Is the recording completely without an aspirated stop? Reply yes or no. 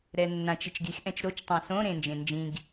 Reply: yes